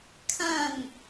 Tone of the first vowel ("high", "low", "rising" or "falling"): falling